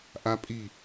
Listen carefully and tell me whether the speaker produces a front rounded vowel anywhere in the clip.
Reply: no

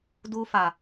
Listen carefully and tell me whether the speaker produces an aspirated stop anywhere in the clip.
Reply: no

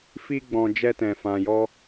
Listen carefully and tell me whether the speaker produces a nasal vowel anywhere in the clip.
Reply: yes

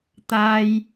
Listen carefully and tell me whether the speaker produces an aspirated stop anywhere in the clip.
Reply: no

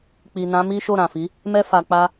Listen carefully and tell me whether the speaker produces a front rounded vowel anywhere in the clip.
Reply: no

